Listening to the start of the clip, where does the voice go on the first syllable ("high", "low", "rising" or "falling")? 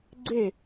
falling